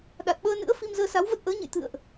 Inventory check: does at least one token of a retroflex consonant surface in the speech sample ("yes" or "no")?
no